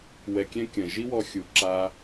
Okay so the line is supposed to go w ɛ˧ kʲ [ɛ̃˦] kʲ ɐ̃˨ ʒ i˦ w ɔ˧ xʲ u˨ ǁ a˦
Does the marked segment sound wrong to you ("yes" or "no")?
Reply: no